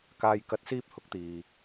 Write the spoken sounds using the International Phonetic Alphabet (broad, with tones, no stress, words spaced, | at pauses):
kaː˨j kɐ˨˥t̚siː˧p̚ hʊ˨˥k̚t̪iː˨